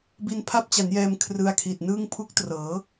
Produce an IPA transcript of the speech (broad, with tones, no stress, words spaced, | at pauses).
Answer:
bi˧npʰa˦˥p̚t͡ɕa˩˦njɛː˧m kʰrɯ˧a̯kʰi˨˩t̚nɯː˥˩ŋ pʰu˦˥k̚trɤː˩˦